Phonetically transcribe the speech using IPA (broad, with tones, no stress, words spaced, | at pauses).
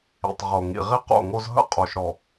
ḭ˨tˤʁo˨ ŋḭ˨ʁi˦qo̰˦˨ŋo˦z ɦə̰˦qʼo˨ʃɾɔ˨